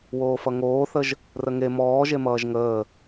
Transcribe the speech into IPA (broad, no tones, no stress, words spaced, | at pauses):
woːfʌŋoːθəʒ | rəŋe mɔːʒemʌːʒ ŋəː